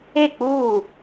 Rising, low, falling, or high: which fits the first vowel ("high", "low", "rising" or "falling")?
falling